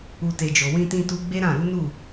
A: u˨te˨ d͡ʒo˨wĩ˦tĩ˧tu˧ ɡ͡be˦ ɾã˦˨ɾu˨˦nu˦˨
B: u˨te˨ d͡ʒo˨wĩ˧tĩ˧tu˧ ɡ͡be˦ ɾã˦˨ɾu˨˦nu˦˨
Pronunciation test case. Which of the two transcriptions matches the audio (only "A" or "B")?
B